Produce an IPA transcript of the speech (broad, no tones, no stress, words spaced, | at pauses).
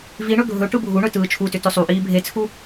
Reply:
viɳɵ ɡʱɵ ʈɯbʱuɳɵ tɯːt͡ʃʰutʏ tɵsˤuʔiː bʱet͡sʰu